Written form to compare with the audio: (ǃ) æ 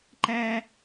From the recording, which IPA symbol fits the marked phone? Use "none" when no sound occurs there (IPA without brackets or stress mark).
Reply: ǃ